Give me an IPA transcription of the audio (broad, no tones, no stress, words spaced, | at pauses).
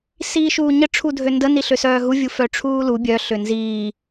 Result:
siːʃuːɲə ʈ͡ʂʰudʱøndə niɬøsœːɦu vʲufœʈ͡ʂʰuːlu bʲœ ɬʏnziː